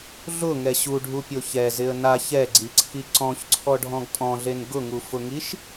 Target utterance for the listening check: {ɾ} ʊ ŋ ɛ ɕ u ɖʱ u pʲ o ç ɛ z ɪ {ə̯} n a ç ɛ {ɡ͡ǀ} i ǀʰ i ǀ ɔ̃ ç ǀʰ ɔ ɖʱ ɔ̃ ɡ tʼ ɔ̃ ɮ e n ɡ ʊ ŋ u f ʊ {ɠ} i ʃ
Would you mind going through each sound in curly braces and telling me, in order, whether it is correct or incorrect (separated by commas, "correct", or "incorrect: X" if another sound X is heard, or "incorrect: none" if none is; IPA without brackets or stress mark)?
incorrect: ɮ, correct, correct, incorrect: ŋ